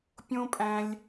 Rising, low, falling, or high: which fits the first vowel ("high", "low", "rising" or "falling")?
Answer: high